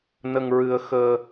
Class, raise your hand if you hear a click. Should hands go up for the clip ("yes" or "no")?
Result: no